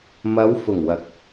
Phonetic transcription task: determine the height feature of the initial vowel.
low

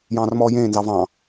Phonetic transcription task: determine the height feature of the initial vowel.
low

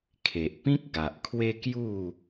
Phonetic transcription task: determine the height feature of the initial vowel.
mid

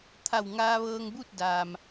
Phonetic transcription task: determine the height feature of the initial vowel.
low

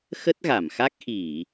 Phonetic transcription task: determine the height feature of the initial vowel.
mid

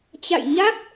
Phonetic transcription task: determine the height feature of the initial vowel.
low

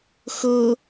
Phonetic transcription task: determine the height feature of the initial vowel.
mid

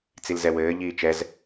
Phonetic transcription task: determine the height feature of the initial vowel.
high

